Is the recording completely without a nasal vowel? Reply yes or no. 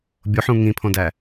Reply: no